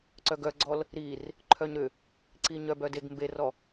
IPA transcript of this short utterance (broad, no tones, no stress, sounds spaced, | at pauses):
ǀ œ ɡ œ ɡ͡ǀ ɔ l | ɾ i r | ǃʰ œ ɲ ɾ ʏ | ǀ i ɲ œ b œ d e ɡ m b e r ɔ